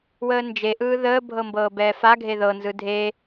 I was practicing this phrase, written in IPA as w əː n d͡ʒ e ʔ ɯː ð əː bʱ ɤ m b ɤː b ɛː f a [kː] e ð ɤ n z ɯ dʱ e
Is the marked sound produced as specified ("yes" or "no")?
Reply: no